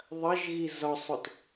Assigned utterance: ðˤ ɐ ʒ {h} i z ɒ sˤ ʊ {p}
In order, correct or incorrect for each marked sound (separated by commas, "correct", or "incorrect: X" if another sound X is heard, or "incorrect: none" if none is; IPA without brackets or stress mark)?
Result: incorrect: ɣ, incorrect: t